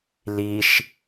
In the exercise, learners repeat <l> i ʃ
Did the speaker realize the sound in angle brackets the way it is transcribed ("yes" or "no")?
yes